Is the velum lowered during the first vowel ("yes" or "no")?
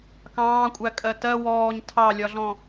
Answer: yes